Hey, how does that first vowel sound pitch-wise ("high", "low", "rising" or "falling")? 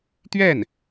falling